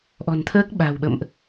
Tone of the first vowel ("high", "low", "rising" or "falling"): low